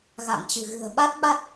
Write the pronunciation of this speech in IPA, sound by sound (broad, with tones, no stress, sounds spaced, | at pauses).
ɣ a̰˧˨ ŋ t͡ɕ ɨ̤˨˩ ɣ ɨ̤˨˩ ə̯ ɓ a˦˥ t̚ ɓ a˦˥ t̚